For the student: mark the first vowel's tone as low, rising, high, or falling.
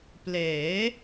rising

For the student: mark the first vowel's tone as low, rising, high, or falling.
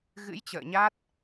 rising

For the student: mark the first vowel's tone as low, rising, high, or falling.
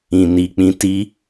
low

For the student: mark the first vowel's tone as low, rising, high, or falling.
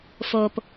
low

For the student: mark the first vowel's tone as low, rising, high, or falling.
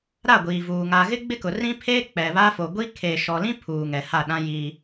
falling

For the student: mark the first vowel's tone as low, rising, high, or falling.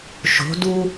rising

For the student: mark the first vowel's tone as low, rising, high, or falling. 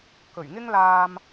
low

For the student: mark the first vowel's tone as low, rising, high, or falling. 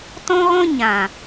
high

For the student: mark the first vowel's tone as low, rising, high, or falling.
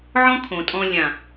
high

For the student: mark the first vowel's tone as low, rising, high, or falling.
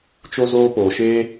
high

